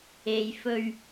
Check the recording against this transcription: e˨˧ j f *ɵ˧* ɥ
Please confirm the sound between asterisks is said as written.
yes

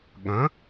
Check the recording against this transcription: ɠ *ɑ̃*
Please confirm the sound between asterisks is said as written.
no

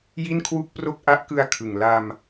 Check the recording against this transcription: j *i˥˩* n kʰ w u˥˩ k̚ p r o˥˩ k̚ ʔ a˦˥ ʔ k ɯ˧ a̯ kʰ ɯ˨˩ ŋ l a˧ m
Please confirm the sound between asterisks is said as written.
yes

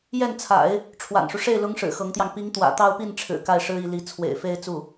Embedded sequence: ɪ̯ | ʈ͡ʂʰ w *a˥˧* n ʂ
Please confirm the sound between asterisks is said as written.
no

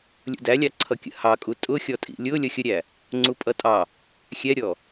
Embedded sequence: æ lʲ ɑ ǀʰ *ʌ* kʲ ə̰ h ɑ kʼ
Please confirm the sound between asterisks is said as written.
yes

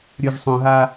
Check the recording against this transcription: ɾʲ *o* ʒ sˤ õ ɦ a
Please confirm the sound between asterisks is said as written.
yes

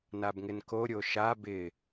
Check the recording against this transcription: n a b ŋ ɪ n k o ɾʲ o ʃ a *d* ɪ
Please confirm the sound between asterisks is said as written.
no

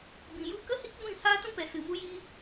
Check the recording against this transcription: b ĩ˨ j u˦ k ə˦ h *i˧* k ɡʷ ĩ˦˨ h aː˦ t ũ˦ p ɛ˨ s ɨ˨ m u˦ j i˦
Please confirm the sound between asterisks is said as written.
no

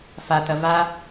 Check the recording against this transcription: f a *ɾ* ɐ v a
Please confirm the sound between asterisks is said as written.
no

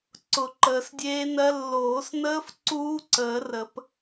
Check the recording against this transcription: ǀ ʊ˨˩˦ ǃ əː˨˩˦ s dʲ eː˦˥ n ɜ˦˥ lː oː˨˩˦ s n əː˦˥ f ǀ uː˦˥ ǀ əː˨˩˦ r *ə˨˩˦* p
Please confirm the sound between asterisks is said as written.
yes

